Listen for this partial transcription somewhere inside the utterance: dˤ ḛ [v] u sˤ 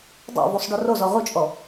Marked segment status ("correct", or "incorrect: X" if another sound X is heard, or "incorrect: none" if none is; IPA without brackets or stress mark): correct